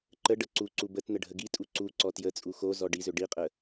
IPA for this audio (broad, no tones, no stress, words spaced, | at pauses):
ǃəɖə ǀuǀu bətnə ɖʱəɡitʼu ǀu ǀɔtjət͡sʼu xo zɔɖizø ɖiqʼə